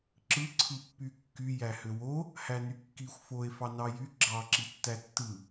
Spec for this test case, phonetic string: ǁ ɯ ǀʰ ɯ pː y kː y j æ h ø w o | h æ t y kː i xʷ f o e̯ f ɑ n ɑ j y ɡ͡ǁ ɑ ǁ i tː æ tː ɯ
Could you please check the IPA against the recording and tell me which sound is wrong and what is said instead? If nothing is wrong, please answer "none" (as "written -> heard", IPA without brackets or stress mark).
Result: t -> n